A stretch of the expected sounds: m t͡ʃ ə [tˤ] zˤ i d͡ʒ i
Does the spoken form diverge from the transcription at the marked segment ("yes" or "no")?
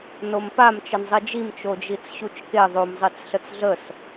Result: yes